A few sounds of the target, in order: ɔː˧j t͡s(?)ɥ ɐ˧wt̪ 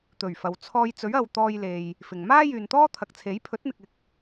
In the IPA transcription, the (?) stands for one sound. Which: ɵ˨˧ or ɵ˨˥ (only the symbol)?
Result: ɵ˨˥